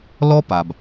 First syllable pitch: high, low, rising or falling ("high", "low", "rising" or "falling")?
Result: high